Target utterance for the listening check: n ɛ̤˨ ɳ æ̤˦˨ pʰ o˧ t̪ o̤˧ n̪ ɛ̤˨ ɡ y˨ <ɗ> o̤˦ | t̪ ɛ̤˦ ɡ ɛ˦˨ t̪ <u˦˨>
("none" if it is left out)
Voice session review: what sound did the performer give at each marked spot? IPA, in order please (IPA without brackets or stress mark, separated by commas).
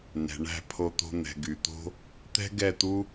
t̪, u˦